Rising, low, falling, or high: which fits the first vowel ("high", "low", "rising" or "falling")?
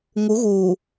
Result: rising